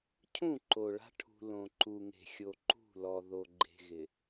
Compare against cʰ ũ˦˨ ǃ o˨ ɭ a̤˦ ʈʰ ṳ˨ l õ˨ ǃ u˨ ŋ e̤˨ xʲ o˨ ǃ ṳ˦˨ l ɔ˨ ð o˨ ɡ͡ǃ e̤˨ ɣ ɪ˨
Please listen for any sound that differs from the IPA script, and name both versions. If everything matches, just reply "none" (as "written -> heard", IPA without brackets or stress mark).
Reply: none